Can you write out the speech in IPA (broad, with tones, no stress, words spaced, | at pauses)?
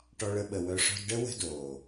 ʈɔ˧ɭə˧ɓə˨wœ˧ ʂɔ̤˧dɖə˦ wə̤˦doː˨